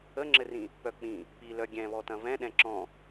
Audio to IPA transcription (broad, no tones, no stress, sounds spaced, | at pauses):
ə ŋ͡ǁ ɘ r ĩ | p œ k͡p ĩ | p i l œ ɡʲ ɛ̃ β ɔ t ɐ̃ v ɛ̃ ɗ ɛ̃ ǁ ɔ̃